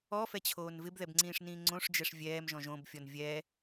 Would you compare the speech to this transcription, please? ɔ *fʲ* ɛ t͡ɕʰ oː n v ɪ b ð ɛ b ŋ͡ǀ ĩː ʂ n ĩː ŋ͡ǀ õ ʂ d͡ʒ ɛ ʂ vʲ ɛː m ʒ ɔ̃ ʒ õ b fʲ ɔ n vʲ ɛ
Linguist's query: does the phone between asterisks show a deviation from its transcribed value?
yes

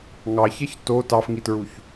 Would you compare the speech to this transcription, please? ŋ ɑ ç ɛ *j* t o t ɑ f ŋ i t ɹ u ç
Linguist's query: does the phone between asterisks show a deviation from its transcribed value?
yes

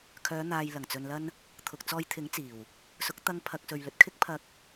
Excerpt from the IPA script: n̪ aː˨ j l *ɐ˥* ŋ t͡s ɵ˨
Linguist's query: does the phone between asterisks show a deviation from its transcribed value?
yes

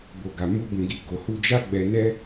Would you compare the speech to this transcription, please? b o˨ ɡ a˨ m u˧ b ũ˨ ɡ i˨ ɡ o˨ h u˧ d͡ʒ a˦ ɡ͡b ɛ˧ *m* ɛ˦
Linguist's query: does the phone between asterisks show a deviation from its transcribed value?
yes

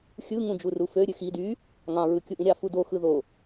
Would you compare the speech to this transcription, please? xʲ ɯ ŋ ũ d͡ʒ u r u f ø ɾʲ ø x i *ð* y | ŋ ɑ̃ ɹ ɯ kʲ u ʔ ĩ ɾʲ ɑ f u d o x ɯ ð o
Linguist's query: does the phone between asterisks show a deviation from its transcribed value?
yes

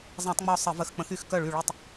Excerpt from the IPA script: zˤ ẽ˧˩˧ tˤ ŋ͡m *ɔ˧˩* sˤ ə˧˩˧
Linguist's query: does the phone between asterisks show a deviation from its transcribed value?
no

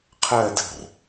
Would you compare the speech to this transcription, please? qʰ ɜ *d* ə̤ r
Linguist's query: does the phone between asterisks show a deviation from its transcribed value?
no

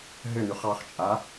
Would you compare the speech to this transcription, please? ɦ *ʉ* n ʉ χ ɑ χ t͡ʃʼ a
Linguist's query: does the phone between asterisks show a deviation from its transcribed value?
yes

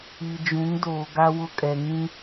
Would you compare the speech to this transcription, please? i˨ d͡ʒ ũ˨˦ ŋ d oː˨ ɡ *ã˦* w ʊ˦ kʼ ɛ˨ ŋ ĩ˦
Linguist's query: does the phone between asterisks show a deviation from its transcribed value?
yes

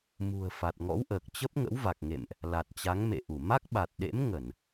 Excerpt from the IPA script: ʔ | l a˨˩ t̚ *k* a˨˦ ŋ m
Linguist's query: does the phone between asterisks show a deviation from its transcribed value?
yes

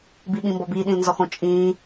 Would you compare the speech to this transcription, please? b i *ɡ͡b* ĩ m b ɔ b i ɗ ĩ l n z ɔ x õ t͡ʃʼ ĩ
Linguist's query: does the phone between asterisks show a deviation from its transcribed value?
yes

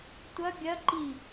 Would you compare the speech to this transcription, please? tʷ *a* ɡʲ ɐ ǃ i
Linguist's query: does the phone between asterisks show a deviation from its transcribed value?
yes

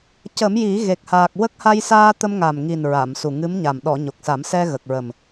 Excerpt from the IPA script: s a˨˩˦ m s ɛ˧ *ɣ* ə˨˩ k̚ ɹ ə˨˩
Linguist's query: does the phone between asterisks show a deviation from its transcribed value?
no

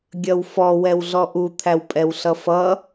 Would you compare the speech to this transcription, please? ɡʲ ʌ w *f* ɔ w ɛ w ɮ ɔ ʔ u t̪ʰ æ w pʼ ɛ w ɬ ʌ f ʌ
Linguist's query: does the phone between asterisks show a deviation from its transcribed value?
no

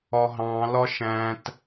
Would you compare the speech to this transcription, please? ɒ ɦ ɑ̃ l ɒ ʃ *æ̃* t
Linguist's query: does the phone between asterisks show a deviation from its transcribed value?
no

